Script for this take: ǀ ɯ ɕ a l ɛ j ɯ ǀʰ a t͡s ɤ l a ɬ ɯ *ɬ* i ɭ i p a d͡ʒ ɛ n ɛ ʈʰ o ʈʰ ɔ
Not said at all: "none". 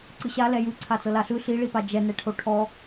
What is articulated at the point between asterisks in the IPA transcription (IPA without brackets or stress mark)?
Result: ɬ